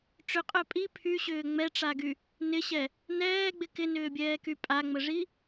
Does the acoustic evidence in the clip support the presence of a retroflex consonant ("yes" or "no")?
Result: yes